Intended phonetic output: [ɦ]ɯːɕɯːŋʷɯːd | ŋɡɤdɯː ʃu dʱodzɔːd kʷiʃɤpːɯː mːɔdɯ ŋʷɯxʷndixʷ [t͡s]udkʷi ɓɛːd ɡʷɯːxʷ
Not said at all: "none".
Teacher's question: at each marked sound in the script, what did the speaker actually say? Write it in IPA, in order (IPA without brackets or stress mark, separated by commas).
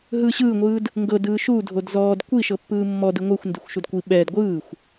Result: ɦ, ʃ